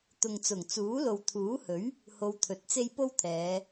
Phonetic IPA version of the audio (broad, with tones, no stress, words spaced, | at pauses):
t̪ʊ˨ŋt͡sʊ˨˩ŋ t͡suː˨˥lo˨wt̪ʰuː˨˥hɵ˨˥ɥ | ho˧wt̪ʰɵ˨t̚t͡se˥j po˥wt̪ʰɛː˨˧